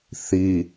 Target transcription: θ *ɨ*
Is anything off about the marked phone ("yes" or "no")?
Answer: yes